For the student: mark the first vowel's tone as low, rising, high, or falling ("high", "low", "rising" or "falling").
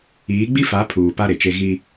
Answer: rising